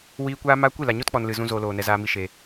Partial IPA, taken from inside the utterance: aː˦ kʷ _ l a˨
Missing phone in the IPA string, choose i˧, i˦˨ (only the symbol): i˦˨